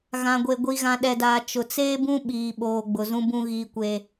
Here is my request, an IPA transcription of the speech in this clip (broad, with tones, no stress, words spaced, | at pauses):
ɣã˨ɡʷe˨ ɡʷi˨ɣã˨ɗɛ˨daː˨ t͡ʃʊ˨t͡seː˦bũ˦ ɓiː˨ɓoː˨ ɡ͡bʊ˨zũ˦bũ˦ ɣiː˦kʷe˦